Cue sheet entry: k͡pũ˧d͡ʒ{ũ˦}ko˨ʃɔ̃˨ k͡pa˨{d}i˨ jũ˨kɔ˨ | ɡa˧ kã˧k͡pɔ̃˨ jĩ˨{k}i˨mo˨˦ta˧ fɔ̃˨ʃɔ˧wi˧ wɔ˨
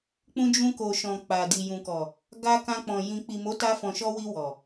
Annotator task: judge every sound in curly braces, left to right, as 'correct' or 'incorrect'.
incorrect: ũ˧, correct, incorrect: k͡p

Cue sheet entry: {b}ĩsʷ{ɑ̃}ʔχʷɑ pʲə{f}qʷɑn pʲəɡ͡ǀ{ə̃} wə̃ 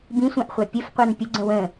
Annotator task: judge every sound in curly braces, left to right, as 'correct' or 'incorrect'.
correct, correct, correct, correct

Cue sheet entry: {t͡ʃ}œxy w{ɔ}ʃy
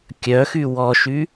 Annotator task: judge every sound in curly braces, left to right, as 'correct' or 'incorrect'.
incorrect: kʲ, correct

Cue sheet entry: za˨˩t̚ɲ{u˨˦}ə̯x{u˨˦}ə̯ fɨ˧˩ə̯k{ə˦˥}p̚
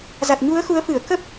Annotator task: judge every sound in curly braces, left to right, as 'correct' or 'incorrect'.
correct, correct, correct

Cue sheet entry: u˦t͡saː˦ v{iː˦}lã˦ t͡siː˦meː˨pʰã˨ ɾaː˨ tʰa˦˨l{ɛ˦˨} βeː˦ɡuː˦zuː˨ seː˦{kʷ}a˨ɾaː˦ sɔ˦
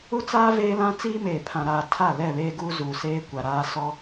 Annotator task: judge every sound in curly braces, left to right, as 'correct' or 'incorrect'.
incorrect: eː˦, correct, correct

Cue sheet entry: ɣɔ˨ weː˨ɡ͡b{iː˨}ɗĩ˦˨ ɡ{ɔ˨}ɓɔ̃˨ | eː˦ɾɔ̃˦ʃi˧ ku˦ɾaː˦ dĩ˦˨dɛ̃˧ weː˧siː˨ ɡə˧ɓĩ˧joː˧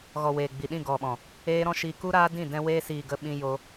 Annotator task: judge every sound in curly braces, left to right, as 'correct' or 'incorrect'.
incorrect: i˨, correct

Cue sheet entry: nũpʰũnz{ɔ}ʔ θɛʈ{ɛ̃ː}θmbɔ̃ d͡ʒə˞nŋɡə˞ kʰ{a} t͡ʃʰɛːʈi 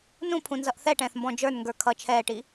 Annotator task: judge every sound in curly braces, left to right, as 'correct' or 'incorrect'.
incorrect: ʌ, correct, incorrect: ʌ

